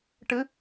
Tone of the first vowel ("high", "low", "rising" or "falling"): rising